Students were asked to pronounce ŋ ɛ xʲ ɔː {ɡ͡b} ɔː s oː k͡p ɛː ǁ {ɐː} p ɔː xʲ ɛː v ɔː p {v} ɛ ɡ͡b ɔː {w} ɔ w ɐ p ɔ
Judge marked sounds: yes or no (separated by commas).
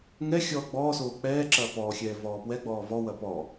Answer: yes, yes, no, no